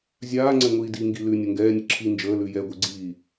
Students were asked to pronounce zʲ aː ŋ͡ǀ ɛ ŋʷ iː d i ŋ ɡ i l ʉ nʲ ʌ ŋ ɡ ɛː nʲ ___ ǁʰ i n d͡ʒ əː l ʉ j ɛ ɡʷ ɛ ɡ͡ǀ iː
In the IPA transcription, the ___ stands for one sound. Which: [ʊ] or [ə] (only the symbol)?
ə